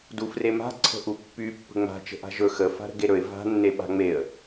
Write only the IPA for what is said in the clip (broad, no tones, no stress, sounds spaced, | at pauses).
d u f r e m a̤ ǀʰ ə̤ ʔ u pː y pː ə̤ ŋ͡m a̤ t͡ʃ ə̤ ʔ a̤ ʒ ɵ x ə f a̤ ɾ ə̤ ɡ e ɾ ɵ ɪ̯ v a̤ nː e ɓ a̤ ŋ͡m e ə̯